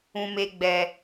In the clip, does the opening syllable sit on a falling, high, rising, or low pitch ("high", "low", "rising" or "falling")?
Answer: high